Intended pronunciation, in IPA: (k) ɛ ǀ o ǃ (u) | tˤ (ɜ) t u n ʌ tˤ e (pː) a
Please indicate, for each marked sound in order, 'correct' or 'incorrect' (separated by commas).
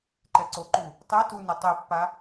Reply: incorrect, correct, incorrect, correct